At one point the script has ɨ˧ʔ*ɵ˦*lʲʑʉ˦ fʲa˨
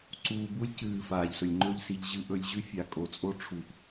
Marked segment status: incorrect: ɵ˧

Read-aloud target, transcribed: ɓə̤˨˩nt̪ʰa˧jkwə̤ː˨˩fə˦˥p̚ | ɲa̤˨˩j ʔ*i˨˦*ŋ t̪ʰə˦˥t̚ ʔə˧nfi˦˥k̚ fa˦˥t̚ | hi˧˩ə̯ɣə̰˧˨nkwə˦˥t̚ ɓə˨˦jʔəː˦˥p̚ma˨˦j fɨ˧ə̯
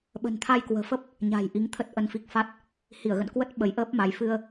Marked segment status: correct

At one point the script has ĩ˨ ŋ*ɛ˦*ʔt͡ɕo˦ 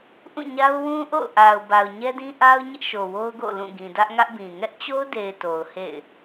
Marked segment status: correct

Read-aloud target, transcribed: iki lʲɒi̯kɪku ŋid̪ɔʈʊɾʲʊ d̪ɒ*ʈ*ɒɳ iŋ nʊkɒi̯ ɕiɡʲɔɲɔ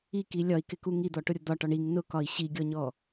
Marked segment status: correct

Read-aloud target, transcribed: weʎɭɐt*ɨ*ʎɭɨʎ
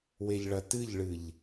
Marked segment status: correct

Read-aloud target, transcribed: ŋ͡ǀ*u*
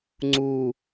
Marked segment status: correct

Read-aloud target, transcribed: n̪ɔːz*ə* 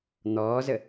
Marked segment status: correct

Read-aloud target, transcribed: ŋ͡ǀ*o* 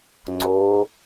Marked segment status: correct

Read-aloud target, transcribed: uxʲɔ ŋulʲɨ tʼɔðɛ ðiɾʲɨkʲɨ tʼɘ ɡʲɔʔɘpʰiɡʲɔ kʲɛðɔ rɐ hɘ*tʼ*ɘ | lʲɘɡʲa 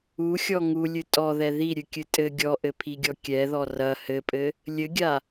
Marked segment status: incorrect: pʼ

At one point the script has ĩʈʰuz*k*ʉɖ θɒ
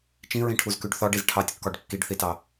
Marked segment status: correct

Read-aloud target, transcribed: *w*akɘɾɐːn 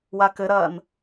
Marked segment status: correct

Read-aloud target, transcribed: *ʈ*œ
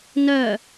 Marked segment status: incorrect: n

